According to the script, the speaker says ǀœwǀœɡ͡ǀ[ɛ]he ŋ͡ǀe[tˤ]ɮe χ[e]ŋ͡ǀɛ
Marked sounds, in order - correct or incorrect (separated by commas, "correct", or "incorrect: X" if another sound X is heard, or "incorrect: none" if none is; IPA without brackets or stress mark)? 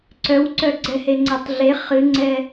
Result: correct, correct, incorrect: ɨ